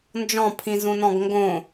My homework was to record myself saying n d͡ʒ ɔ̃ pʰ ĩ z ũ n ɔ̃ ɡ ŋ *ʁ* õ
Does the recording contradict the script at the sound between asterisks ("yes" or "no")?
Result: yes